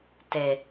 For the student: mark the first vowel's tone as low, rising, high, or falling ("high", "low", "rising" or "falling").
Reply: low